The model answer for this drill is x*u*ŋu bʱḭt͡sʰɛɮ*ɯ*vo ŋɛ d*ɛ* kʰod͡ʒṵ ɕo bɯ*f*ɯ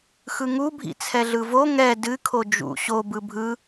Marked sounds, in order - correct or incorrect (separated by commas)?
incorrect, correct, incorrect, incorrect